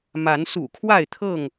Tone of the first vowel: rising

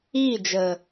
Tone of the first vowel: falling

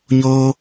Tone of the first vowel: high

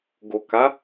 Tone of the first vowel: low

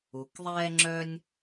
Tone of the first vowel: low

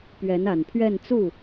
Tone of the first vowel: rising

